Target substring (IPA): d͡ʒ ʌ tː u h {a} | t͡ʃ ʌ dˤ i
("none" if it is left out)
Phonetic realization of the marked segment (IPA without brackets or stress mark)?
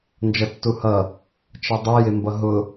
ʌ